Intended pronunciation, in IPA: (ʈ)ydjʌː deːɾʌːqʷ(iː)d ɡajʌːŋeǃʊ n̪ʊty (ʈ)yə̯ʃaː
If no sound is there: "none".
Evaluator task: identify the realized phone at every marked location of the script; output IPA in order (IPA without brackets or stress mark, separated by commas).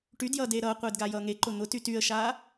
ʈ, eː, t